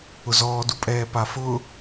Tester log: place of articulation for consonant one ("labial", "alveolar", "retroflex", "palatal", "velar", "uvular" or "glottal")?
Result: alveolar